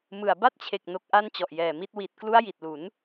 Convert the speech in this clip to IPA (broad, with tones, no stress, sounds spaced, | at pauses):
m ɯ˨˩ a̯ b a˥˩ t̚ t͡ɕʰ e˨˩ k̚ n o˨˩ k̚ ʔ a˧ n t͡ɕ ɔ˨˩ ʔ j ɛː˨˩ m i˦˥ t̚ w i˨˩ t̚ k l u˦˥ a̯ j i˨˩ t̚ l u˩˦ n